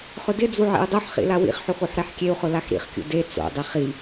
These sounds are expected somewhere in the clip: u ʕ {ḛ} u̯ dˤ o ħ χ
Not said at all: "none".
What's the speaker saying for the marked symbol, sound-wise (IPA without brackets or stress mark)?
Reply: ḛ